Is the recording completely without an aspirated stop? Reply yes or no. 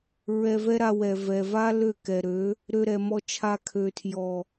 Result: no